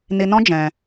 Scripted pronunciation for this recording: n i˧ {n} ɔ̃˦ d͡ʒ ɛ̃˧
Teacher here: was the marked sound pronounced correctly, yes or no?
yes